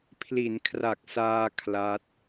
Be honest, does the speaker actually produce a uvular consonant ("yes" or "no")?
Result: no